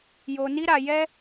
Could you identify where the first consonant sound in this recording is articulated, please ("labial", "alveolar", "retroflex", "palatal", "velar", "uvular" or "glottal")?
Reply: palatal